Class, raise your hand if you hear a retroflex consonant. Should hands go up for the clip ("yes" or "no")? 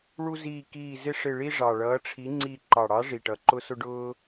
yes